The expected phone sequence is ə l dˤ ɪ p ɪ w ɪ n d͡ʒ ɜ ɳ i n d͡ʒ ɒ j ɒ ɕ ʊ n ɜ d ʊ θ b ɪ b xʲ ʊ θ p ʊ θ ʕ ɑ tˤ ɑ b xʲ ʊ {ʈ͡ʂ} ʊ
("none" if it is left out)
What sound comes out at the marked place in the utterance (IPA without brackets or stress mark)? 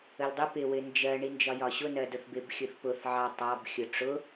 ʈ͡ʂ